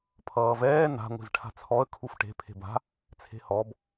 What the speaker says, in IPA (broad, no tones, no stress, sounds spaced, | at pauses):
pʰ ʌː v ɛː n a̤ ŋʷ i̤ z ʈʰ a̤ t͡sʰ ɔ ə̯ kʰ u f ʈ e̤ pʰ e̤ b a̤ | t͡sʰ e̤ h ɔ b